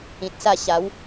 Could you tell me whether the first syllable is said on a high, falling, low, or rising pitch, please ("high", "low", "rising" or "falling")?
low